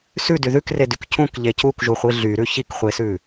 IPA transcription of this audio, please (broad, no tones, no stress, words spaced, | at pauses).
sʉdy ðʉkredyk cũkʎe cukʒuχʷi ɮyɾʉ çikχʷesʉ